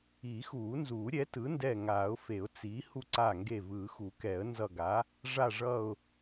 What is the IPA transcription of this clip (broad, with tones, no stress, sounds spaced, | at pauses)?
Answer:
iː˨˩˦ x uː˨˩˦ n z uː˨˩˦ ɾʲ ɛ˩˥ t ɯ˩˥ n d ɛ˧˩ ŋ aː˨˩˦ ʊ̯ f e˨˩˦ ʊ̯ t͡s i˩˥ h u˧˩ ǀ a˧˩ ŋ ɡ e˧˩ v ɯː˨˩˦ x u˨˩˦ k ɛ˨˩˦ ə̯ n z ʌ˧˩ ɡ a˩˥ | ʐ a˧˩ ʐ ʌ˧˩ ʊ̯